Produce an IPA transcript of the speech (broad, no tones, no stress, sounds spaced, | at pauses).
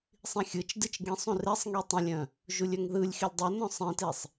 sˤ ĩ xʲ ɯ t͡ʃ d ɨ t͡ʃ ɡ ĩ sˤ ũ r e sˤ ŋ i tˤ ə̃ lʲ œ̃ | ʒ u lʲ œ ŋ ð ɯ lʲ x i lʲ dˤ œ n œ̃ sˤ ẽ t e sˤ